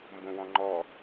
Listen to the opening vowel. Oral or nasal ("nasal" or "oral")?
nasal